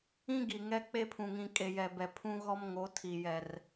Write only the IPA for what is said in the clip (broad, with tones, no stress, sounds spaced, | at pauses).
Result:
ĩ˦ ɡ i˨ ŋ ɛ˦ k͡p e˦ pʰ ũ˨ ŋ ĩ˨ kʼ e˨ j ɛ˨ b ɛ˨ pʰ ũ˦ ɣ ɔ˦ m ŋ o˨˦ tʰ i˨ j ɛ˨ r